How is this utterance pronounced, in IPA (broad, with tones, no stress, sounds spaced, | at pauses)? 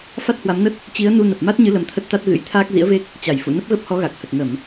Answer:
f a˦˥ t̚ h w a˨˦ m n ə˦˥ t̚ | t͡ɕ i˨˦ ə̯ n u˧ n ə˨˩ p̚ m a˦˥ t̚ ɲ ɨ˨˦ l ə˧ m t̪ʰ ə˦˥ t̚ t̪ a˦˥ t̚ ɣ ɨ̰˧˥ j t̪ʰ aː˦˥ k̚ z ḭ˧˥ ə̯ v e˦˥ k̚ | t͡ɕ a˧˩ j f ṵ˧˨ n ə˦˥ p̚ ɣ ə˦˥ p̚ h ɔ˨˦ ɣ a˨˩ k̚ h ə˨˩ t̚ ŋ ə˧˩˨ m